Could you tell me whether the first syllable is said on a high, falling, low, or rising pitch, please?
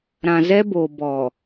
low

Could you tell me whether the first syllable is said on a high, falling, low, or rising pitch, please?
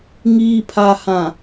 low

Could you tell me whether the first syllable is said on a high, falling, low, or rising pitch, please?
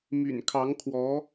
low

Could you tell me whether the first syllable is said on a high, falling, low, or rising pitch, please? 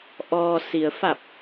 low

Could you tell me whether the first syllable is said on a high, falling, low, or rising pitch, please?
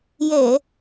low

